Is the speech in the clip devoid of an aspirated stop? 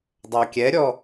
yes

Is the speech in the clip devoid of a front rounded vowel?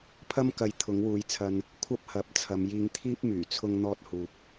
no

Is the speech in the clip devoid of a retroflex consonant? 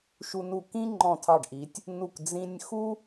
no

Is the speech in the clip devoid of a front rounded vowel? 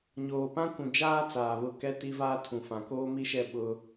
yes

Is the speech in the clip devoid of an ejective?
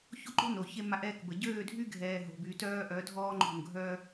yes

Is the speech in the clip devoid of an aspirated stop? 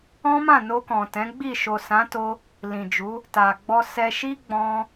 yes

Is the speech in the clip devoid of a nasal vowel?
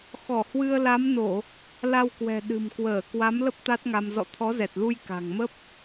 yes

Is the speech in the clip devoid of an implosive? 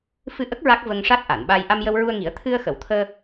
no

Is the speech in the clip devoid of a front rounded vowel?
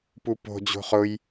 yes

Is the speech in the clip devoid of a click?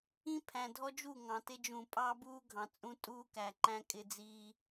no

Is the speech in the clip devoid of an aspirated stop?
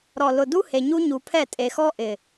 no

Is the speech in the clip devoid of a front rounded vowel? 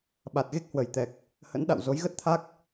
yes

